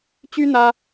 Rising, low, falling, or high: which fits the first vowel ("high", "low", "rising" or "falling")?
high